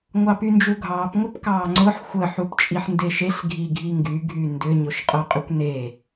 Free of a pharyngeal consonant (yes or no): no